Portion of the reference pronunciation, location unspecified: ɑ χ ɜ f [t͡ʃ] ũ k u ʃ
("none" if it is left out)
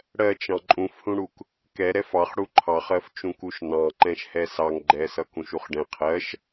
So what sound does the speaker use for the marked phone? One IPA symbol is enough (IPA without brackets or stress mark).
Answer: t͡ʃ